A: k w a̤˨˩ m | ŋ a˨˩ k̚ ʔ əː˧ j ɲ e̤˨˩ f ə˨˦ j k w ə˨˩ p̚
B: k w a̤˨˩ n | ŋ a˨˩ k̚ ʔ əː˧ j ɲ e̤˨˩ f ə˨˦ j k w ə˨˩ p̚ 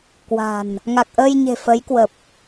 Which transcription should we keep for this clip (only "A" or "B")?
B